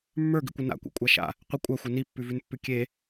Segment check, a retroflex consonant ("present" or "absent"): absent